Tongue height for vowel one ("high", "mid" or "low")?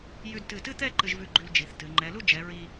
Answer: high